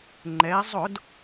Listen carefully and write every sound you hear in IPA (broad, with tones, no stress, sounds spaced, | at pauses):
ŋ͡ǃ ɛ˩˧ zˤ ʊ˧˩˧ d